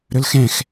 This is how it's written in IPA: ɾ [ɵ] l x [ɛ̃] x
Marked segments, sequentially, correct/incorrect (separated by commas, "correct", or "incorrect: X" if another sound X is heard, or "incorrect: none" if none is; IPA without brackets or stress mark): correct, correct